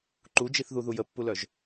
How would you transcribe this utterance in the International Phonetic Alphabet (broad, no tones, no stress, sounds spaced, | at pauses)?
ǃ u d͡ʒ i θ ð u ð u j ə pː u l œ ʒ